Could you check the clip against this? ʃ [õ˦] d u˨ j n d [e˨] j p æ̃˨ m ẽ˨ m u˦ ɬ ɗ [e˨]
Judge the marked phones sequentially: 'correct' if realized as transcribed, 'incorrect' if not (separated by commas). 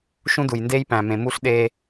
incorrect, incorrect, incorrect